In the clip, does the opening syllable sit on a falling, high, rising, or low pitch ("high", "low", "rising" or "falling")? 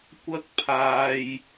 high